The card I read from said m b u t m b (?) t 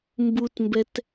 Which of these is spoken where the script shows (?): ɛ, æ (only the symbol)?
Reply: ɛ